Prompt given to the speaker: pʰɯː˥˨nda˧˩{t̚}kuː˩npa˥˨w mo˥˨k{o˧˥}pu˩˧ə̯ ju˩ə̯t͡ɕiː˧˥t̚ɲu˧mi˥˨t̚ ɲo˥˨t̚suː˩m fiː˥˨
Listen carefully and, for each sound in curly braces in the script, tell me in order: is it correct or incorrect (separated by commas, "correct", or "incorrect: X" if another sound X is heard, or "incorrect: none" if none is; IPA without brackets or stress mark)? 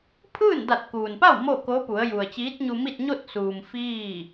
correct, correct